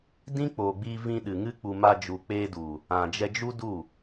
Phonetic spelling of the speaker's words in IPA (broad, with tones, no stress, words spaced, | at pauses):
dĩ˦k͡poː˨ɡ͡biː˧vĩ˧ ɗɨ˨ŋɨ˦k͡pu˧ ma˧d͡ʒu˨ k͡pe˧du˨ | ã˨d͡ʒɛ˧d͡ʒu˦du˦˨